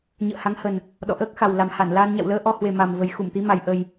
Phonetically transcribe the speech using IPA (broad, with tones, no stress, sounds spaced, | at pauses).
ɲ ə̰ː˧˨ h a˨˦ ŋ h ə˨˩ n | ɗ ɔ̰˧˨ ʔ əː˦˥ k̚ x a˨˩ w l a˨˩ m h a˧˩ n l aː˧ n ɲ a̰˧˨ w l əː˧ ʔ ɔ˧ h w e˨˩ m a˨˩ m v ə˨˩ j x u˧˩ m t̪ i˨˦ m a˨˩ j ʔ ə˨˩ j